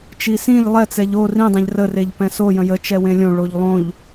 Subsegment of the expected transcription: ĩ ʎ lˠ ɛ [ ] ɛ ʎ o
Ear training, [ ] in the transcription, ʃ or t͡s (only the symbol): t͡s